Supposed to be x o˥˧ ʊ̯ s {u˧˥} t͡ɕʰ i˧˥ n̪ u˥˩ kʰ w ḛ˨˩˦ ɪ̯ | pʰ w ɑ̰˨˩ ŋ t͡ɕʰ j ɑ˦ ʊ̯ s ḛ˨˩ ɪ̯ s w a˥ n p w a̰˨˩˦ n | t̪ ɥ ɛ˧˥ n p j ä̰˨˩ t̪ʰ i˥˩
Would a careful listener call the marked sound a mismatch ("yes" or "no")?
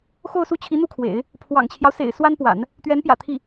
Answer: yes